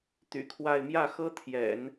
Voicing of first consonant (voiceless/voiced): voiceless